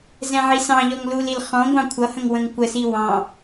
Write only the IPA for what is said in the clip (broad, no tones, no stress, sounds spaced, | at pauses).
z ɛ̃ ʕ i s ɑ̃ ʎ ɔ ŋ l u l i l χ ɔ̃ ɡʷ ɑ̃ kʷʰ ʌ h ə̃ ŋ w ə̃ ŋ kʷ ə s i w ɑ̃